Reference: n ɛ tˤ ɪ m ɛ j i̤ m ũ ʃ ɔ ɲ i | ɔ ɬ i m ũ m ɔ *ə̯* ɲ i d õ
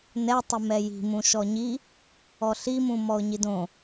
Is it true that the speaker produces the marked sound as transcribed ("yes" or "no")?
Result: no